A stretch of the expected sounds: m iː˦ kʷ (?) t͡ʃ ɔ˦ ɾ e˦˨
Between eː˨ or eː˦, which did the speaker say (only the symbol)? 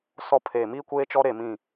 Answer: eː˦